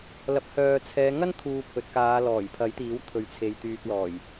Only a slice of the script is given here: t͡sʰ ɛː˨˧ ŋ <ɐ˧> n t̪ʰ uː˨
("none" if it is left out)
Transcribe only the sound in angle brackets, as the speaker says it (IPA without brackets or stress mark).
ɐ˥